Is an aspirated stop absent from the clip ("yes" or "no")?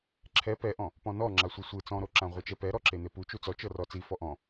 no